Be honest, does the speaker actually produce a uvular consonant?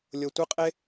yes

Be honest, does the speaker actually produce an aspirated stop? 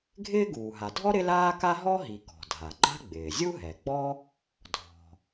no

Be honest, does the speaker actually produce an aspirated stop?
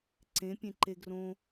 no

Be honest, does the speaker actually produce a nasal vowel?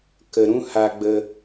yes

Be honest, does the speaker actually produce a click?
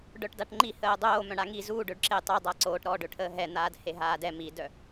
yes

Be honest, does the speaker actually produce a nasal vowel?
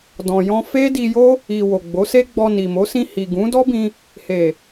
yes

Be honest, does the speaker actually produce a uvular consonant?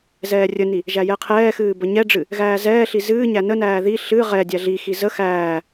yes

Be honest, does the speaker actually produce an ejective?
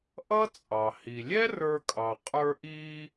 yes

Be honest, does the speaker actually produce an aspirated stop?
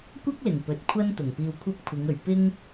yes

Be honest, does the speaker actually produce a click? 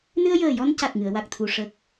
no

